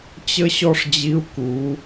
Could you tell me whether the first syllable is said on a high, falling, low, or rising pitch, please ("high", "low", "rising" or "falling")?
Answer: high